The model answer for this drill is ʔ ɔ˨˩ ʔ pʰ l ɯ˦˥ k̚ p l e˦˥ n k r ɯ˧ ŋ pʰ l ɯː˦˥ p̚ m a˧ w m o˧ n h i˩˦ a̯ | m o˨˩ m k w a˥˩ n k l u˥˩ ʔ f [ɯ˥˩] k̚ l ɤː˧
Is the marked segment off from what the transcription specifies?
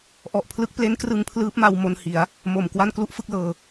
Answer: no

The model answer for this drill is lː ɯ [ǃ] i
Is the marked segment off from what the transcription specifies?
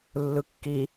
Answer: yes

